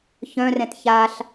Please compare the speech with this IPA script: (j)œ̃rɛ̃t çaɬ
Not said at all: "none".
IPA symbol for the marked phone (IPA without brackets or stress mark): ç